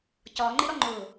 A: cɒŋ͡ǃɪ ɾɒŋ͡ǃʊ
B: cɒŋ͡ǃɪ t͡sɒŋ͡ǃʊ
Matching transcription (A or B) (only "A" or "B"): A